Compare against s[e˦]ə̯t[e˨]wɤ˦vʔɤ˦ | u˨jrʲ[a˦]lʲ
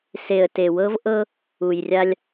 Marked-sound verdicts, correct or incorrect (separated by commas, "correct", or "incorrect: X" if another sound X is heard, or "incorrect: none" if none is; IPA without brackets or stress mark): incorrect: e˨, correct, correct